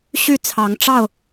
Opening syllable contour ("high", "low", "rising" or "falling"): falling